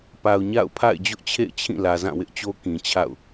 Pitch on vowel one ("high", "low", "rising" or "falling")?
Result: low